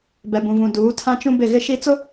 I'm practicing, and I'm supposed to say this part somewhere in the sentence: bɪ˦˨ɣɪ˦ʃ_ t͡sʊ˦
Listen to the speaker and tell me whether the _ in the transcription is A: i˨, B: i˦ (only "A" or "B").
B